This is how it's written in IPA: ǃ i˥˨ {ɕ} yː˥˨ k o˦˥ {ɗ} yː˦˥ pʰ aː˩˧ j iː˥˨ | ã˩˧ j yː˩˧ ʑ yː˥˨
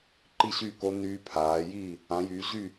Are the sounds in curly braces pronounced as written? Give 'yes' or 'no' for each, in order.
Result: yes, no

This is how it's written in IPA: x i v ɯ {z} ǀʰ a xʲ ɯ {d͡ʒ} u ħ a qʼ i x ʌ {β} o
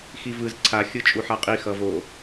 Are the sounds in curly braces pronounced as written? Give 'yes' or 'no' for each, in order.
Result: yes, no, no

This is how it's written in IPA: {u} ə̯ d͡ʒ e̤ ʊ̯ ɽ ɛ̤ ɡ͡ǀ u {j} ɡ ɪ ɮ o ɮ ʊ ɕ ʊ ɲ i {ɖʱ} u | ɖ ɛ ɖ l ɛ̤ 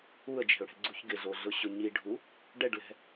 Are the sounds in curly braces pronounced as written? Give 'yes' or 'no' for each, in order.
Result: yes, no, yes

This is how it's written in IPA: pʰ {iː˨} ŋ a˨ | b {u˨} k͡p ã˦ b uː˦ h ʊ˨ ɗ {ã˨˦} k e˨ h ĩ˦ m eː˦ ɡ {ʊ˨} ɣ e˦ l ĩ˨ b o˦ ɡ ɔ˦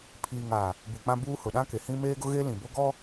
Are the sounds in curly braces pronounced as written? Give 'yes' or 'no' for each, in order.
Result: yes, yes, no, no

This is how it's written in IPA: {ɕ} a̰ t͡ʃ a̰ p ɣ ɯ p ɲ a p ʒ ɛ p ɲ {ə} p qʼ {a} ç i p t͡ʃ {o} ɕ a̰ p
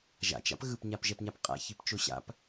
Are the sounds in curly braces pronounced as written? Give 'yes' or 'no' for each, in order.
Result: no, no, no, yes

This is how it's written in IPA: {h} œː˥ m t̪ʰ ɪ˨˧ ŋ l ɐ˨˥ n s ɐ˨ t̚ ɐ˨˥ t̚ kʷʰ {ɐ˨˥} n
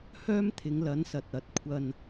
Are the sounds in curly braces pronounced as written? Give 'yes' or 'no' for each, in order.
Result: yes, no

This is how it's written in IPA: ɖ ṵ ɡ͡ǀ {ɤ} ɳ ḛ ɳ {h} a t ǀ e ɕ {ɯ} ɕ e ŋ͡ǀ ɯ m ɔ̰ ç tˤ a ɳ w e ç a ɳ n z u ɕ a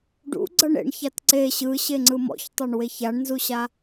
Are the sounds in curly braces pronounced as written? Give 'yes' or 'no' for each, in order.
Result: yes, no, yes

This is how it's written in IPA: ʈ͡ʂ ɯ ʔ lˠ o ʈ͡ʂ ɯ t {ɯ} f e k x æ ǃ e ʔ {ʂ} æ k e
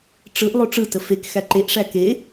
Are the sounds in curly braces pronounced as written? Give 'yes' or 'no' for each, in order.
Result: no, yes

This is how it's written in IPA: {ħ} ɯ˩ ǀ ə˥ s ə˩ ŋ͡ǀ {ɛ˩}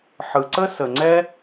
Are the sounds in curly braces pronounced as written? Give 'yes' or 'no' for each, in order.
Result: yes, no

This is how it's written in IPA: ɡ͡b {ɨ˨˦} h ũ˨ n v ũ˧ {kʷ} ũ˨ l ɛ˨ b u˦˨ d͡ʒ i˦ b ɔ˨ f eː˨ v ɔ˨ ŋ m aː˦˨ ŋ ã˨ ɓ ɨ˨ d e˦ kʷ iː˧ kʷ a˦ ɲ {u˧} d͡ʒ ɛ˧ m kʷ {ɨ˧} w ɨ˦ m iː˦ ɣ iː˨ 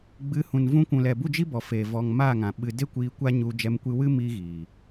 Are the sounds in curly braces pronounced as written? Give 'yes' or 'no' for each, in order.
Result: yes, yes, yes, yes

